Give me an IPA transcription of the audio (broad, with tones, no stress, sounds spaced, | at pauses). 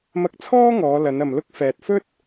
m ɐ˧ k̚ t͡sʰ ɔː˥ ŋ ɔː˨˧ l ɐ˨˧ n ɐ˨ m l ʊ˥ k̚ f ɛː˨ t̚ f ɵ˥ t̚